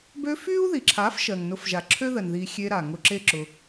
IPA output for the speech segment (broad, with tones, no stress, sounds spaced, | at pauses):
b ø˧ f y˦ u̯ ð i˨ ǁʰ a˨˦ f ʃ ɜ˨ ŋ n ʊ˧ f ʒ a˨ ǁʰ ø˦ ð ɜ˨ n ð i˧ xʲ e˧ ɾ a˨ ŋ ʊ˧ ǁ e˦ ǁ ʊ˧